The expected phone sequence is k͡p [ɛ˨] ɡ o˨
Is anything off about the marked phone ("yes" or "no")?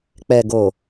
no